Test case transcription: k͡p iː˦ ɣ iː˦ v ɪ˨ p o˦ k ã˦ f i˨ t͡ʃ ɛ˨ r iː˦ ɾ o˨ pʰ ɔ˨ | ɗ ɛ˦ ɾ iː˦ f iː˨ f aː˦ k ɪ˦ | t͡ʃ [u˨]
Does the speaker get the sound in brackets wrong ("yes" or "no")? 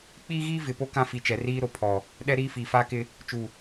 no